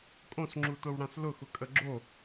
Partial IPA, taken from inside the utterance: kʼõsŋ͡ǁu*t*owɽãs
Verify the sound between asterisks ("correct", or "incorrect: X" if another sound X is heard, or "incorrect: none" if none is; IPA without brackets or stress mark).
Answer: correct